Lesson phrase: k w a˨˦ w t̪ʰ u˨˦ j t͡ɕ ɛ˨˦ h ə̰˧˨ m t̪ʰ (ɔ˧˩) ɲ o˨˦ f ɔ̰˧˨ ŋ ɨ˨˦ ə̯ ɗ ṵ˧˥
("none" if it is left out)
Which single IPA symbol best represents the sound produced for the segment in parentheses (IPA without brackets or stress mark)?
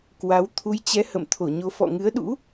o˧˩